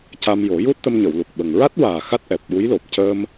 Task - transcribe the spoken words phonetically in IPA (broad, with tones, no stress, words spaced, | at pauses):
ca˧mjo˨˩˦ju˦˥t̚t̪ə˧m ɲə˨˩˨wlu˨˩k̚ɓə˨˩ŋ ɹa˦˥t̚waː˨˩ xa˦˥t̚ʔɛ˨˩p̚ ɓu˧˥jlo˨˩p̚ cə˧m